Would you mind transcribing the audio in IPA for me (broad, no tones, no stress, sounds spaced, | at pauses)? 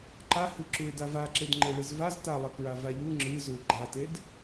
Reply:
ǃ a h ɨ ǁ u ɪ̯ d a v a ǁ e d ŋ͡ǃ e ɭ ɨ z v a z t a lˠ ɐ k ɹ a v a ʎ u ŋ͡ǁ ɨ z u ɪ̯ ɡ͡ǃ a t e d